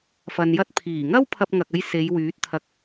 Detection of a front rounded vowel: present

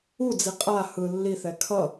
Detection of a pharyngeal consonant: absent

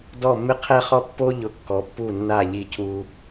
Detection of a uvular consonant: present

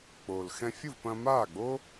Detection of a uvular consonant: absent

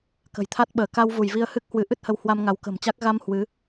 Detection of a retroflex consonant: absent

